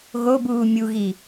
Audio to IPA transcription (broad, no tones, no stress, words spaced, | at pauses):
ɣobuː mʲuɣi